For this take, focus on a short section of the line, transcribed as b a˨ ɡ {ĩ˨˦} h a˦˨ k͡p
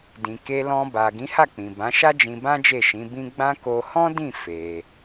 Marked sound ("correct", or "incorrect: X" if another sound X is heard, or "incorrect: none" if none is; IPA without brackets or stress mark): correct